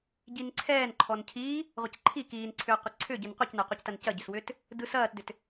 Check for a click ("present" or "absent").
present